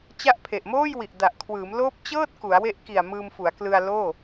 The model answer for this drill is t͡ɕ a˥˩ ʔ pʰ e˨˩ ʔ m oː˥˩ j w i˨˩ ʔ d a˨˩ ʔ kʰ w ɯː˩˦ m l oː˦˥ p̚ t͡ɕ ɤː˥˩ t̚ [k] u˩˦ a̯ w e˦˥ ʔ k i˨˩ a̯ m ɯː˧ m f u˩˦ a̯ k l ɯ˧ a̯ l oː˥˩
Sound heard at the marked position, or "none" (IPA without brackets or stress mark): k